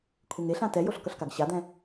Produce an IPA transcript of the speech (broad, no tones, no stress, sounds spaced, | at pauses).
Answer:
kʷʰ e ŋ e ɬ ã t ɛ j o ɬ k ʌ ɬ k a ɡ ɕ a d̪ ɛ̃